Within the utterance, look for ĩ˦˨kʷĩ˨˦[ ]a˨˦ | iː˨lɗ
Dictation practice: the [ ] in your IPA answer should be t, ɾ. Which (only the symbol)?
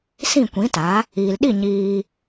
t